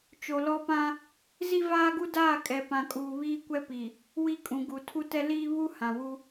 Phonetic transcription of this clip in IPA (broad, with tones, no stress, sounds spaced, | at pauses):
t͡ʃ o˨ l ɔ˦ p ã˦ | z i˦ v aː˦ ɡ u˦ d aː˦˨ kʼ ɛ˨ p ã˨ kʼ uː˨ β iː˦ kʷ ɛ˦ p i˨ | w i˦ kʼ ũ˨ ɡ u˨ tʰ u˦ t ɛ˦ l iː˦ β u˦ h ã˨ w u˦